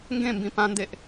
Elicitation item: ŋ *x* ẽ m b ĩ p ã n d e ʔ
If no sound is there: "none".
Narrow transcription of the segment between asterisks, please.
ɡ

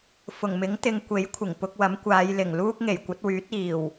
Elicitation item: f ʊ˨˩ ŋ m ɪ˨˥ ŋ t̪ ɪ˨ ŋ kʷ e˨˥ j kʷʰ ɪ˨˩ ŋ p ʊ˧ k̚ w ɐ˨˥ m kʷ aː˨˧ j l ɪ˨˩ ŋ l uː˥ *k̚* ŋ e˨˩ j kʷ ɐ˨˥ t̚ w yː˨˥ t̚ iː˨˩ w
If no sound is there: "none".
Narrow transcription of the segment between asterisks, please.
k̚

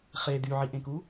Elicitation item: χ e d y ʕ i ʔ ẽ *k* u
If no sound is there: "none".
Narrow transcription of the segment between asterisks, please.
k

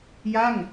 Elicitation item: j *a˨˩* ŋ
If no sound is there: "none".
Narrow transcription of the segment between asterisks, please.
a˥˩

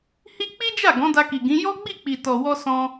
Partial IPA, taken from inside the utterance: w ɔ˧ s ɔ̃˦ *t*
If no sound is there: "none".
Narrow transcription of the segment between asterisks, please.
none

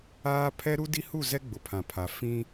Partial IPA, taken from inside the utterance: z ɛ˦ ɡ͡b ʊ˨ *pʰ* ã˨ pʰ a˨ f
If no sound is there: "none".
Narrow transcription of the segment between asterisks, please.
pʰ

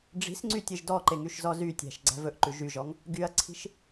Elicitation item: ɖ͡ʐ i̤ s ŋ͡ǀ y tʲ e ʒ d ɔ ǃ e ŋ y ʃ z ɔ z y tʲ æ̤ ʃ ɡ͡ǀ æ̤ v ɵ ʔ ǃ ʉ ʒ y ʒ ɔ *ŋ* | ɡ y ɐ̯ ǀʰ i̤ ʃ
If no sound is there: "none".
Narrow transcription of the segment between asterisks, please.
ŋ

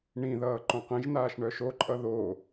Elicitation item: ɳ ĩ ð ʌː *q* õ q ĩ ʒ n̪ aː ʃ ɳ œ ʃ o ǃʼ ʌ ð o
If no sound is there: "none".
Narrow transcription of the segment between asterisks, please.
ǃ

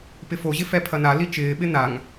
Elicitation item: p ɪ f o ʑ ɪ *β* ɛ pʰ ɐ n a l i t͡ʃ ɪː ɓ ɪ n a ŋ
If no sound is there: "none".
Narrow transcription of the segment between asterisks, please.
f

